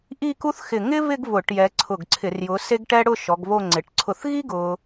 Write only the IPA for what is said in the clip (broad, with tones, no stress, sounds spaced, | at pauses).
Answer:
ʔ i˥˧ k u˥ θ x ɪ˧˩ ŋ ɪ˥ β ɪ˥˧ ɡ β ʊ˧˩˧ ʈ j ɛ˨˦ ǀʰ ʊ˧˩ ɡ ǀʰ ɪ˧˩˧ r j ʊ˨˦ s e˥ ɡ ʈ ɛ˥ ɽ ʊ˥˧ ʃ ɔ˨˦ ɡ β o˥˧ ŋ͡ǀ ɪ˨˦ ʈ ǀʰ ʊ˧˩ θ ɣ i˥ ɡ ʊ˥